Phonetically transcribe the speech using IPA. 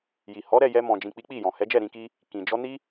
j i˨ h ɔ˨˦ ɾ ɛ˦˨ j ɛ˧ m ɔ̃˨ d͡ʒ ĩ˨ k͡p i˨˦ k͡p i˦˨ j ɔ̃˨ h ɛ˨˦ d͡ʒ ɛ˦˨ ɾ ĩ˧ k i˦ | k ĩ˨ d͡ʒ ɔ˧ n i˦

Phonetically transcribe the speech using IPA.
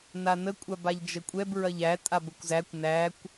n a n ə kʷʼ a b a ʎ d͡ʒ ə kʷʼ ɛ b ɹ ɐ ʎ æ tʼ a b ə kʷ z æ kʷ n æ kʷ

